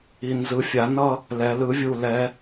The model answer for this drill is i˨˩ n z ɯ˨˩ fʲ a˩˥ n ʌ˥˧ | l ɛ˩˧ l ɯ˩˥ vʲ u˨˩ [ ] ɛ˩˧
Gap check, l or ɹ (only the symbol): l